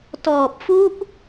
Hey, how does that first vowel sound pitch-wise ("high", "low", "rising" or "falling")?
low